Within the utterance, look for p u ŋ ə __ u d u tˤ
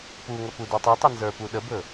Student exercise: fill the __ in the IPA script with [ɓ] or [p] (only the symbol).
p